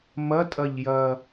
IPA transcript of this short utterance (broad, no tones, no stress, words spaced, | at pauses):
mɐtʼɐʎ jɐ